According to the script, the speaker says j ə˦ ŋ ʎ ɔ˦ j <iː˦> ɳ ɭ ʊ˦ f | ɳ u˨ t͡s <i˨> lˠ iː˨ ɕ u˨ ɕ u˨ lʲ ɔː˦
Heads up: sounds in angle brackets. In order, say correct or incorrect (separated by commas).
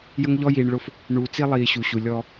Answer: incorrect, incorrect